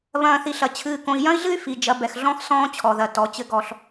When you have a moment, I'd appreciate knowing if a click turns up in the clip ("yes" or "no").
no